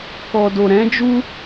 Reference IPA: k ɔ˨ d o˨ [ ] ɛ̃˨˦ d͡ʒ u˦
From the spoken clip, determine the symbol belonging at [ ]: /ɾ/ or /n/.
ɾ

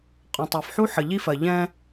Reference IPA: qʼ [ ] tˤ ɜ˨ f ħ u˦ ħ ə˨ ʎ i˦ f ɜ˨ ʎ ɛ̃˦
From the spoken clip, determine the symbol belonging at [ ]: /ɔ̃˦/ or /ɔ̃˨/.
ɔ̃˨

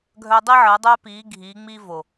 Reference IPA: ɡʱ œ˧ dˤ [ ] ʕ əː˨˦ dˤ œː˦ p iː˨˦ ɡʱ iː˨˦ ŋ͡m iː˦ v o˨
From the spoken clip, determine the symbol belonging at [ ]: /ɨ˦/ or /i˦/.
i˦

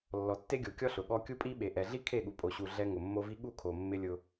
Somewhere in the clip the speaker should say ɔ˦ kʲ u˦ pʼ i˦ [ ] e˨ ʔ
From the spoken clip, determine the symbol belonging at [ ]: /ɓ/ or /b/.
ɓ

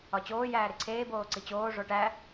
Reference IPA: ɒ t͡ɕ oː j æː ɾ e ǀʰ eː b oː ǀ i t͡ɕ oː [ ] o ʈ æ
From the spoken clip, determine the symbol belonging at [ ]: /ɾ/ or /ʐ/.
ʐ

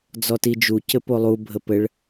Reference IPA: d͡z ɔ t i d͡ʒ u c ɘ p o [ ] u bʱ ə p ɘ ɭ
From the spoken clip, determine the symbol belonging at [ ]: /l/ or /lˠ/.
lˠ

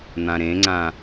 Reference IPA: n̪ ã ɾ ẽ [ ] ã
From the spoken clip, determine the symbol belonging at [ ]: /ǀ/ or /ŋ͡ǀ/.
ŋ͡ǀ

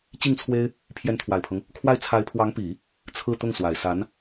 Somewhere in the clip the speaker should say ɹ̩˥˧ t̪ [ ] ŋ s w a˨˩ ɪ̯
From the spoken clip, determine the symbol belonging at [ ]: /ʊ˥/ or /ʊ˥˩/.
ʊ˥˩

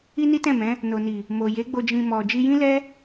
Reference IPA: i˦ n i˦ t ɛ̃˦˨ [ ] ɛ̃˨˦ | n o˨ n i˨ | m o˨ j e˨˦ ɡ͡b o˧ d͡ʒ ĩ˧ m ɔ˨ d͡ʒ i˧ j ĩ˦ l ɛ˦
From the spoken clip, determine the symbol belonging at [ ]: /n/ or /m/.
m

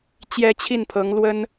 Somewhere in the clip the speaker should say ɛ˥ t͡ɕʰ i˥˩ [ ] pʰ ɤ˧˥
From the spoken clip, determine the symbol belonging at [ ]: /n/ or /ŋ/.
n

